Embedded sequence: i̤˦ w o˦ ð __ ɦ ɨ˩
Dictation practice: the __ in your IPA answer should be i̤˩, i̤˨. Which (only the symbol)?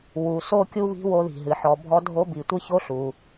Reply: i̤˩